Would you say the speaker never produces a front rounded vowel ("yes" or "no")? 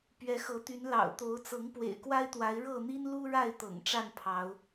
no